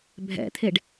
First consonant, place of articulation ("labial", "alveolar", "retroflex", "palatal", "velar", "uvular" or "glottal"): labial